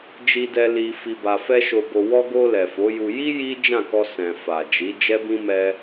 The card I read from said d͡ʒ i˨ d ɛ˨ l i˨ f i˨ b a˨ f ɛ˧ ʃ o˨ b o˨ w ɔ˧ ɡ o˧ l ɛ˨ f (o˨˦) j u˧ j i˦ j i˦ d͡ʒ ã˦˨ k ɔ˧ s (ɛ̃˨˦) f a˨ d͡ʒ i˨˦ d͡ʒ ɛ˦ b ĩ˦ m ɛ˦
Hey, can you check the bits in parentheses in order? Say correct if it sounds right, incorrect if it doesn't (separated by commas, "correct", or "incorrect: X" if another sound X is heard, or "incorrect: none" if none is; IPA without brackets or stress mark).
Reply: correct, incorrect: ɛ̃˨